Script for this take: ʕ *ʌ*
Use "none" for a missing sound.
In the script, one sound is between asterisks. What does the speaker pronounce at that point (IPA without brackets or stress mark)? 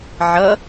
ʌ